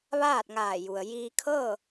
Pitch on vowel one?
falling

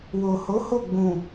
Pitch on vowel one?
low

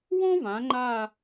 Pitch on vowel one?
high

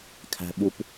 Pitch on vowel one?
high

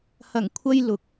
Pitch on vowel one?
low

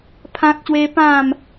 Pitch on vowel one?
high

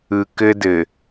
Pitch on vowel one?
low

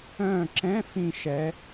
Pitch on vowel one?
falling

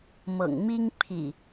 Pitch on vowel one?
low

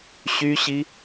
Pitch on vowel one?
high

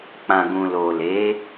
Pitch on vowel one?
low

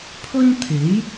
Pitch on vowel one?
high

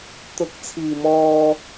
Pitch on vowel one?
rising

